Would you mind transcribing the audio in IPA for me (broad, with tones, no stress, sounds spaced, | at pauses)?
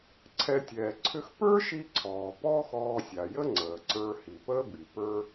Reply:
ǀʰ ɛ˧ tʲ ɛː˩ ǀʰ ʏ˧ x p ə˞˥ ʃ i˧ ǀʰ ɔː˩ p ɔː˥ x ɔː˧ sʲ a˩ j ə˥ ŋ͡ǀ əː˩ ǀ ə˞˧ h i˩ p əː˥ b i˩ p ə˞˥